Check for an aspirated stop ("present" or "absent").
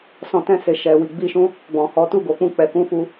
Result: absent